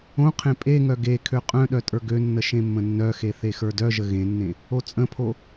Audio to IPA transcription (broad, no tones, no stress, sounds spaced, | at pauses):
õ qʰ ẽ pʼ e ŋ œ ɡ e kʰ ø qʼ œ̃ ɗ œ tʼ ə˞ ɡ ø nː ə ʃ ẽ mː ə̃ nː œ x e θ e x ə˞ d œ ʒ ə ɣ ẽ nː ẽ | o t͡sʼ ə̃ pʰ o